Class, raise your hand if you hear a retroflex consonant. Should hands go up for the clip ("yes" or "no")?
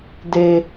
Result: no